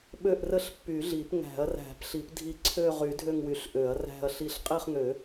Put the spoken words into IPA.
ɓø˦˨ʔrə˦˨ɬ pːy˨˩˦ɮi˨˩˦pŋæ̤˨˩˦ɐ̯ ræ̤˨˩˦p ɬi˨˩˦pdʱi˦˨ ǀʰø˦˨ ʁy˨˩˦ dʱø˦˨ŋwy˨˩˦ɬ ʔø˨˩˦ɐ̯ræ̤˦˨ɐ̯ɬi˦˨ɬ qʼi˦˨χŋø˨˩˦

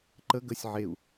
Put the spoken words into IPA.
ǃə ɡəsʲ ʕeu̯

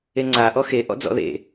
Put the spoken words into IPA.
eŋ͡ǀa ʔɔxe ʔɔ̰d͡zɔ̰ðḛ

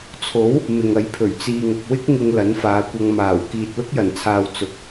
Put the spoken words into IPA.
t͡sʰo˨˥w | mɪ˨ŋɐ˨˧jpʰɵ˨˩ɥ t͡siː˨ŋɐ˨k̚wɪ˥k̚ ŋɪ˧ŋ lɐ˨˥nfaː˨˧kʷɐ˧ŋ maː˨˩w kiː˨t̚lʊ˥k̚jɐ˨˩nt͡sʰaː˨w t͡sʊ˨k̚

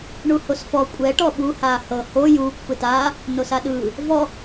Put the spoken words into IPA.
ɳuhosfɔ kʷʼɛ ʈɔɓu haːhɤ ho juːkʷ fɯtaː | nosaɗɯː | vɔ

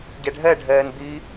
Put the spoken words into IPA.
ɟɛɖʱɛɖʱɛːn d̪i

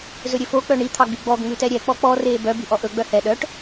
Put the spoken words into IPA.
zɵɾʲøfo k͡pœɳi t̪ʰɑɡ͡byɡ͡bɔɡ ŋ͡mʉtɛɾʲɛ k͡pɔk͡pɔ reːbœ byʔɔʔɵ ɡ͡bœhɛ ɗœʈ

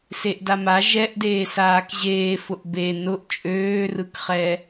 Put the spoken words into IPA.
seʔdama ʒɛʔdeː saːkʑeːfʊʔ be nʊʔ t͡ʃʼøːrɯkχɛ

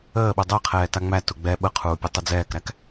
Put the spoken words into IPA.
əːɓu dˤəːqʰɛːta ŋ͡mæ tuɡ͡bɛ ɓəqʰuːpʲə tˤəd͡zɛːkɾæk

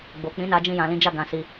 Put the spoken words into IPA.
ɡ͡bo˨ k͡pĩ˨˦na˧ d͡ʒĩ˧jã˨lĩ˨˦d͡ʒa˦˨ ɡã˧si˧

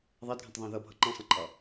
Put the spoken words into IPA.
ðˤædɡʱə̃tˤðˤɑ̃ ðʌbʱʌ ǃæ̃sˤə̃ǃʼɑ

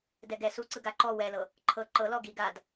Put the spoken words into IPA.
dɛɡɛ suǀɯ ɡaǃɔ wɛlɤ | ǃʰɤ ǃɤlɔ ɡi ɡad

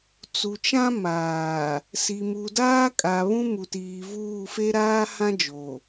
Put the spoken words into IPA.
t͡su˨t͡ʃã˦maː˨ | si˨mu˨daː˦kʼa˨ βũ˦mu˨tiː˨ vuː˦˨fe˦ ɾaː˦hã˦ d͡ʒo˨

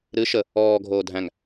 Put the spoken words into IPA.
ɾɨ ʃə | ɔː ɡʱoːdʱæ̃ŋ

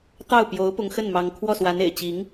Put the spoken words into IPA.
t̪ɑ˥˩ʊ̯pjo˧˥ʊ̯ pʊ˧˥ŋxə˥˩nmɑ˧˥ŋ kʰwɔ˥˩swa˧˥nḛ˨˩ɪ̯t͡ɕi˧˥ŋ

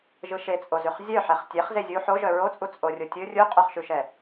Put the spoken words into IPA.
ʒɯʃet͡sʼozʉχ zʲœħɛχ tʲeχ zezʲu ħo ʒœɹot͡sʼu t͡sʼorʲotʲɯ rʲuqʼœχʃʉʃɛ

